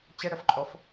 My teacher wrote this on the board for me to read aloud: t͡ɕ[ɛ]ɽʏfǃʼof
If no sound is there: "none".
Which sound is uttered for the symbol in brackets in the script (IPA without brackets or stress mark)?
ɪ